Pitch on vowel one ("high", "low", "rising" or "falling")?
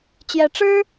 rising